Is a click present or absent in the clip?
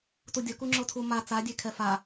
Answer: present